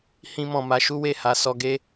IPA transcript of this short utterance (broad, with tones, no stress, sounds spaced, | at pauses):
h ĩ˧ m ɔ̃˨ m a˨˦ ʃ u˦ w e˦˨ h a˨˦ s ɔ˧ ɡ e˦